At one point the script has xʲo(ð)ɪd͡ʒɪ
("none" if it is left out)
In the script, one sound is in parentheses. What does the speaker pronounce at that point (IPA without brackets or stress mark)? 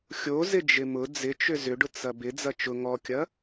z